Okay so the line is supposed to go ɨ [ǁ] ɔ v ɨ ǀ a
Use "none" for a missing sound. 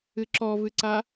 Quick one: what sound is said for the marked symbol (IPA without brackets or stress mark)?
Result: ǁ